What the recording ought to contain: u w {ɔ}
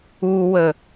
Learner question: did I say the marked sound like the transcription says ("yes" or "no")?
no